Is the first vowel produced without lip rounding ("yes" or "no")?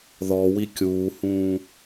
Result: no